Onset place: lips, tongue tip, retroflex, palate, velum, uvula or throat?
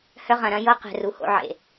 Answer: throat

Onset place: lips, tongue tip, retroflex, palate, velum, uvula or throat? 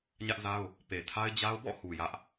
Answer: palate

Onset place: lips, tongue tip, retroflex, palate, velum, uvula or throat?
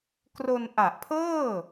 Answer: velum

